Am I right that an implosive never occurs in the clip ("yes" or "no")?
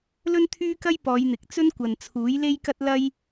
yes